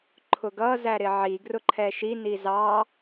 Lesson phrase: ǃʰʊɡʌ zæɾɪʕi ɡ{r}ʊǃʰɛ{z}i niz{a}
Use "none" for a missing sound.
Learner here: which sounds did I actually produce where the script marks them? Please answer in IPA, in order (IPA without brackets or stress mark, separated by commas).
r, ʃ, ɑ